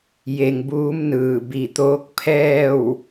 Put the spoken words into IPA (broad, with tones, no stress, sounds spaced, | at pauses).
j e˧ ŋ b uː˧˥ m n ɯː˧˩ b i˧˩ t̪ oː˧˥ k̚ pʰ ɛː˥˨ w